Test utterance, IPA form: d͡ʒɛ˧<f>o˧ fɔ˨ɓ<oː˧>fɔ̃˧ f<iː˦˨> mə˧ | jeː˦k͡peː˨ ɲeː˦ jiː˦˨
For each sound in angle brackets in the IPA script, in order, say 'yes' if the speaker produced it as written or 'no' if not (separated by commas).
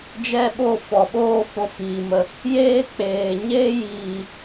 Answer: no, no, no